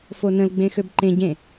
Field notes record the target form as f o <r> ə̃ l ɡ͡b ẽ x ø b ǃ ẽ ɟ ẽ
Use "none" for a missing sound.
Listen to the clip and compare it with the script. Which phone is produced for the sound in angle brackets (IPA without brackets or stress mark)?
n